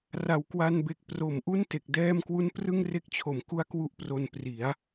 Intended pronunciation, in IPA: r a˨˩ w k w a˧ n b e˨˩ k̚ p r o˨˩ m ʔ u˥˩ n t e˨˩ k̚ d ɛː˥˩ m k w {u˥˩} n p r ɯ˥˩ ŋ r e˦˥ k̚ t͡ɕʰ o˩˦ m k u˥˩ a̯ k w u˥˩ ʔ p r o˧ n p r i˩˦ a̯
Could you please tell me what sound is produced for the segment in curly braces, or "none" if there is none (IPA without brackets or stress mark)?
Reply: u˥˩